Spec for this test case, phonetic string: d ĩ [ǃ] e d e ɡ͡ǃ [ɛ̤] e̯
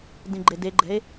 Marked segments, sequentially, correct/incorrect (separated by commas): incorrect, correct